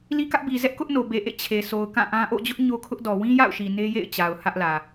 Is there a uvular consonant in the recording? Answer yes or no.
no